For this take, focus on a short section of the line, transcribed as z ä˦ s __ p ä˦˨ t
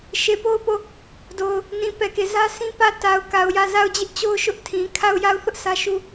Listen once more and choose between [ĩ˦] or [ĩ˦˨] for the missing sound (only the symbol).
ĩ˦